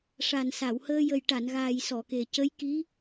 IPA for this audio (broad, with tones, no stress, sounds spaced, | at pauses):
ʂ a˨˩ n s a˨˩˨ w h əː˧ j ə˨˩ j ʈ a˨˩˨ n ɣ aː˨˩ j s ɔ˨˩˨ k e˨˩ c ə˧˥ j k i˧˥